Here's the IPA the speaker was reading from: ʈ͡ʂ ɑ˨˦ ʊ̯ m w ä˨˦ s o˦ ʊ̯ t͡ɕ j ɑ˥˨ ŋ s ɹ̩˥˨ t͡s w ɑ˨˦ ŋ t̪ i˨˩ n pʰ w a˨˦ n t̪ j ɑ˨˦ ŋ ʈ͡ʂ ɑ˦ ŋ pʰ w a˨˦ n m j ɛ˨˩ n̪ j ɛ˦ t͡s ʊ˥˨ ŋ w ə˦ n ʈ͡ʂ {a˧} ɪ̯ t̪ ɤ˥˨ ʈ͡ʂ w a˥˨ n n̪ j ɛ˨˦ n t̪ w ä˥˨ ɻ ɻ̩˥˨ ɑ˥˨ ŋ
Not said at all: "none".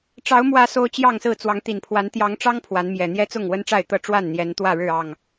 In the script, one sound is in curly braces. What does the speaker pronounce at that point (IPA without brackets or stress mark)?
a˥˨